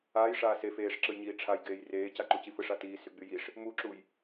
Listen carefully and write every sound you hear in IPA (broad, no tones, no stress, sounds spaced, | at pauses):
aː j ʂ aː s e f eː ʂ ǁ ɯ j ɲ iː ʈ͡ʂʰ a j ɡ eː j r eː c a ǃ u c i f ɯ ʂ a t iː s y ɡ͡b y j i ʂ | m u ǁ u j